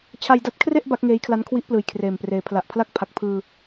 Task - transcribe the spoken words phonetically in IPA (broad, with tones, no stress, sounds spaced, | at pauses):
t͡ɕʰ a˧ j d a˦˥ t̚ kʰ r e˥˩ ʔ b a˦˥ k̚ ŋ eː˦˥ j kʰ l a˦˥ n kʰ w i˦˥ ʔ p l ɯː˨˩ j kʰ r eː˨˩ m p r eː˩˦ pʰ l a˨˩ ʔ pʰ l a˥˩ k̚ pʰ a˨˩ k̚ pʰ ɯː˧